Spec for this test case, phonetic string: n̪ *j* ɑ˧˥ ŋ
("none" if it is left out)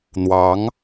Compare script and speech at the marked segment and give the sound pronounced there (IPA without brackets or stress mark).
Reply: w